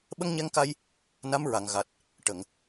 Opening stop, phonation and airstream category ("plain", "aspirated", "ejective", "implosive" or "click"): implosive